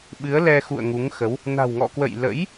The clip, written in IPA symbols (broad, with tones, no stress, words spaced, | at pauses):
ɓɨ˨˦ə̯lɛ˧xṵ˧˨ə̯ ŋu˨˦ŋxə˨˦w | na̤˨˩wŋɔ̰˧˨kwə̰˧˨j lə̰˧˥j